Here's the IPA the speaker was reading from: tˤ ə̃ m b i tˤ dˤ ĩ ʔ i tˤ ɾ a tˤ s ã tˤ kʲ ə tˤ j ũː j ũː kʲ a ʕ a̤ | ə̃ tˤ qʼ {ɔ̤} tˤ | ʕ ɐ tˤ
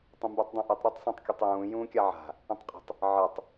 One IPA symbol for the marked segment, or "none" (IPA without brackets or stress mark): ə̤